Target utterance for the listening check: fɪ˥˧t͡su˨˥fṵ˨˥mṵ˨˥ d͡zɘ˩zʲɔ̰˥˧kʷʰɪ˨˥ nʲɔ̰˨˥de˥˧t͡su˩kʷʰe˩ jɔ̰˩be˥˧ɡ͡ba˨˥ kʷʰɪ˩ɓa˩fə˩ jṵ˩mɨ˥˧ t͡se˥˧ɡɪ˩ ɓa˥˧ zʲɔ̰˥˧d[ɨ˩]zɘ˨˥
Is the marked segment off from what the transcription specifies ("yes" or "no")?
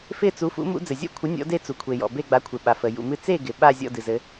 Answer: no